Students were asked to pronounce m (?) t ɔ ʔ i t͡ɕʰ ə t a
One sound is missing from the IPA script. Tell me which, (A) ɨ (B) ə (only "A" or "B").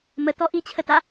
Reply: B